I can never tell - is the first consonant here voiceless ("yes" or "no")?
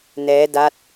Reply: no